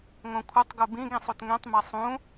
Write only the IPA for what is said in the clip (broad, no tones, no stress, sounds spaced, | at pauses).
ŋ õ kʷʰ ʌ tˤ ɡ u b ĩ ɡ ĩ sˤ u t ŋ ɛ̃ tˤ m ɛ sˤ ũ